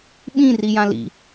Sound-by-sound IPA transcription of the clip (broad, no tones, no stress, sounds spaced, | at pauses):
ɓ ĩ r i j ã l ḭ